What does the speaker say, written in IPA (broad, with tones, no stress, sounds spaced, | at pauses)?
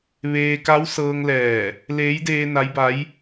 ʋ eː˧ k a˧˥ w s ɤː˧ ŋ l ɛː˧˩ | l eː˧˥ j d eː˧ n a˧˥ j b a˧˥ j